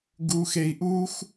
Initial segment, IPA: ɡ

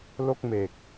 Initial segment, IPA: l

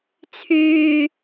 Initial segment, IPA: t͡sʰ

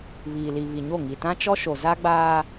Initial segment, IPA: β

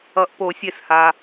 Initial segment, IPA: ʌ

